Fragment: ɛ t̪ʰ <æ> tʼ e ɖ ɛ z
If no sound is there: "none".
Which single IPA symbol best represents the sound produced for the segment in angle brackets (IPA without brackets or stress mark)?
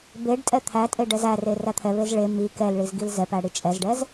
æ